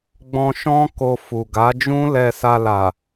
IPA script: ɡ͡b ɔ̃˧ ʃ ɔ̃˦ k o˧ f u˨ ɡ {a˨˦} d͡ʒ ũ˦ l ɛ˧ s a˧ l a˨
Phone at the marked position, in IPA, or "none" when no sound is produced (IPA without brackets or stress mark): a˨˦